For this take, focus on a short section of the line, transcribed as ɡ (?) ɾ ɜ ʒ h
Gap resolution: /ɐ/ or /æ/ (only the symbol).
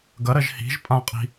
ɐ